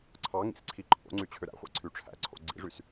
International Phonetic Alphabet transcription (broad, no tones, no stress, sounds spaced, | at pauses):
ǀʰ ɑ ŋ ḭ s ǀʰ i ǃʼ o̰ ŋ͡ǀ y t͡ɕʰ ø ɾ æ̰ χʷ æ̰ ǀʰ y ʈ͡ʂʰ æ̰ ǀʰ o̰ ɡ͡ǀ ḭ ʐ y s